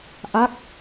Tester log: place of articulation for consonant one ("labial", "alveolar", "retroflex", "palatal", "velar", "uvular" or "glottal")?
glottal